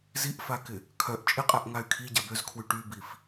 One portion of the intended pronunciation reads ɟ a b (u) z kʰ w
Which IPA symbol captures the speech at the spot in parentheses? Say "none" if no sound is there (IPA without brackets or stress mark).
ø